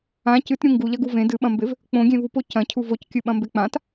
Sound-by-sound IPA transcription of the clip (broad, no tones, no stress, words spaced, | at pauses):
ã cɨtɾʲũ ŋɡuʎɐɡu vẽ dɨɓɐ̃mbev | k͡põɡʲẽvupo cɐ̃cʰuv ockʲɨɓɐ̃mbe k͡pãt